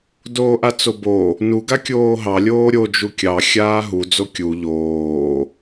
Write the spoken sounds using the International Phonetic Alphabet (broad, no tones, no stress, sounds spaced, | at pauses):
d oː ʔ a t͡s o b o | n u ɡ a kʲ oː ɦ ɑ lʲ oː ɾʲ o d͡ʒ u kʲ ɑ xʲ aː ɦ u d͡z o kʲ u ʎ oː